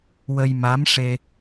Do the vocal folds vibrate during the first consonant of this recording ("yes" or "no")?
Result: yes